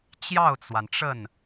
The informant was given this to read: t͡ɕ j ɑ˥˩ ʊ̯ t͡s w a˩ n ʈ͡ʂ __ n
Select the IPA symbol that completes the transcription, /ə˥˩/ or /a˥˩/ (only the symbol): ə˥˩